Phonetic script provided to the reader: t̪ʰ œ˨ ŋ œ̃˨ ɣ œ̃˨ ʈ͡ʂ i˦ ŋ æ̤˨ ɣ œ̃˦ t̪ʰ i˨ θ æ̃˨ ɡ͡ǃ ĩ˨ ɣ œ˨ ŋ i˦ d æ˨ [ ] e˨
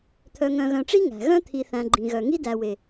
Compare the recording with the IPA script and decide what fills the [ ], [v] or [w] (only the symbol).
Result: w